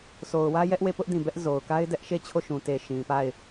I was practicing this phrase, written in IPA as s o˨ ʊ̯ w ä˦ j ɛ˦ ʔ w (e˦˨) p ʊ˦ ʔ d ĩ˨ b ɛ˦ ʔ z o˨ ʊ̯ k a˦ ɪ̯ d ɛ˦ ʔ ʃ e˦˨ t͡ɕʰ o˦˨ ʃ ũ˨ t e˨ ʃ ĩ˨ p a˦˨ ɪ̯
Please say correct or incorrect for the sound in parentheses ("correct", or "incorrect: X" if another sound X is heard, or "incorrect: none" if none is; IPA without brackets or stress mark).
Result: correct